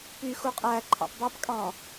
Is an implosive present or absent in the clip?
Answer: absent